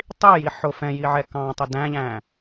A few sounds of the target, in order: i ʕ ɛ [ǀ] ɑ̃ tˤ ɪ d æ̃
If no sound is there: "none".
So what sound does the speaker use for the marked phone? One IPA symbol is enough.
k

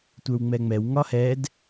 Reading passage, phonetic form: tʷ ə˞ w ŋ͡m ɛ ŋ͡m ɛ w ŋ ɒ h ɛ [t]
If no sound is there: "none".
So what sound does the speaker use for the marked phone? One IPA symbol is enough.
d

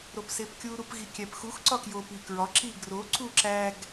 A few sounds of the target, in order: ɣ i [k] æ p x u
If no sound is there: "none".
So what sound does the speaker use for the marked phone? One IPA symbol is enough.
kʲ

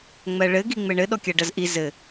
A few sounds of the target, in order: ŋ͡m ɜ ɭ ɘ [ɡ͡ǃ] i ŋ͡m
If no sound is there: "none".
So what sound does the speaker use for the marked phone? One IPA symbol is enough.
ɡ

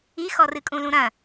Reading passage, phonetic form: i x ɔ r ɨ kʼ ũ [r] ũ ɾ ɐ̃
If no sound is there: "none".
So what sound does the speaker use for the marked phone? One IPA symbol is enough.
l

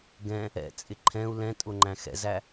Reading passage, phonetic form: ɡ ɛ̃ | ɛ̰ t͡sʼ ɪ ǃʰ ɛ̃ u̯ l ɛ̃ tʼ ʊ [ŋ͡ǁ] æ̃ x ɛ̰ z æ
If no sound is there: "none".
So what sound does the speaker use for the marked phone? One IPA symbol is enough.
ŋ͡ǃ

